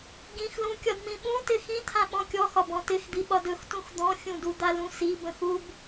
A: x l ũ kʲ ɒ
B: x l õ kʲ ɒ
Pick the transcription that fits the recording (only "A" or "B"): A